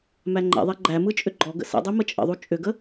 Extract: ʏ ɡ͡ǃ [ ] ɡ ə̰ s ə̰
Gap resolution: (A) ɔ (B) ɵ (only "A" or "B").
A